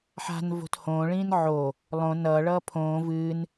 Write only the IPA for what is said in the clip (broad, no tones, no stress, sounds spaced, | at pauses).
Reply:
ħ a̤ n v o̤ t h õː ɭ ĩː n ʕ o | lˠ õ n ʌː ɭ ʌː pʰ õː v ɨː n